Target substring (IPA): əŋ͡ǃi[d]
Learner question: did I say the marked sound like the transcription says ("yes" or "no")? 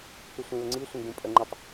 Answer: no